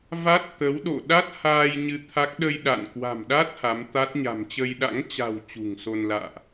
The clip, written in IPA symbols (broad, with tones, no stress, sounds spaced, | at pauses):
v a˦˥ t̚ t̪ ə˨˦ w ɗ o̰˧˨ ɗ a˦˥ t̚ h aː˧ j ɲ ɨ˨˦ t̪ʰ a˦˥ k̚ ɗ ə˧ j ɗ a̰˧˨ n k w a̤˨˩ m ɗ a˦˥ t̚ h a˨˦ m t̪ a˦˥ t̚ ɲ a̤˨˩ m t͡ɕ ə˧ j ɗ a̰˧˥ ŋ t͡ɕ a̤˨˩ w t͡ɕ ṳ˨˩ ŋ s o˧ n l a̰ː˧˨ ʔ